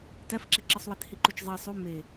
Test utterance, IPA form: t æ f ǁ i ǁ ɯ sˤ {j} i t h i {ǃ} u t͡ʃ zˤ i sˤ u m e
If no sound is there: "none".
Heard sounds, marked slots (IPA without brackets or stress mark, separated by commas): w, ǃ